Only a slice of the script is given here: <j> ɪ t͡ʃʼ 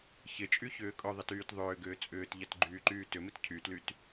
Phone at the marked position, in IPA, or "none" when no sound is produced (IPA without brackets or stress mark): ç